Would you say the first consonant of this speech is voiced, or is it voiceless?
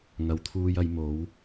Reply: voiced